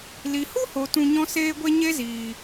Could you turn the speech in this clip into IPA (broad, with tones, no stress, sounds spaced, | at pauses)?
l i˨ h u˦ h o˨ t ũ˧ ɲ ɔ̃˦ s eː˦ ɡʷ e˦ ɲ e˦ z iː˨